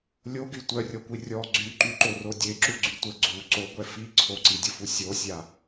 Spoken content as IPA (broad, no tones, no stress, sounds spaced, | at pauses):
lʲ o ɡ y tʷ œ rʲ ɔ kʷ i rʲ ɔ ɡ͡ǀ y ǃ y ǃ o r o dʲ e ǁ u ɡ͡ǀ y tʷ ə ɡ͡ǀ u ǀ o ɡʷ ɛ f i ǀʰ o ǀ i dʲ ə f u sʲ o sʲ a